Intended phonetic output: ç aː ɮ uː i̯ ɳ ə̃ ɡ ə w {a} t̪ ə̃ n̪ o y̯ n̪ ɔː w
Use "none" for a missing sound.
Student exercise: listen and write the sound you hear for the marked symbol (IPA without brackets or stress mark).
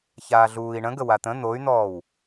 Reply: a